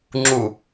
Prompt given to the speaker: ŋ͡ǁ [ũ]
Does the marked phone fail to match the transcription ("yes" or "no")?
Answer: yes